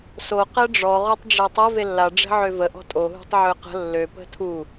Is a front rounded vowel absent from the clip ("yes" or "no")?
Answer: no